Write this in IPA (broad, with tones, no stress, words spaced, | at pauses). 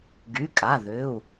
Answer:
ɡy˩˧˩kʼa˩˧˩ðʏ˩˧˩u̯